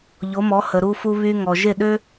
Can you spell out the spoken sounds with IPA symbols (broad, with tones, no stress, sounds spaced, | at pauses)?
ʎ o˩˥ m ɔ˩˥ h ə˩ ɾ u˧ f u˧ β y˧ ŋ ɔ˩ ʒ e˥˩ ɗ ø˥